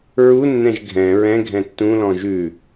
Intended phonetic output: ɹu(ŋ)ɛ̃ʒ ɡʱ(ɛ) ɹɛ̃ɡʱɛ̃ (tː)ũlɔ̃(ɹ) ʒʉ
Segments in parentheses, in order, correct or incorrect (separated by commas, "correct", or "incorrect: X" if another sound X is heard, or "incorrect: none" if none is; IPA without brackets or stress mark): incorrect: nː, incorrect: ɛ̃, correct, incorrect: none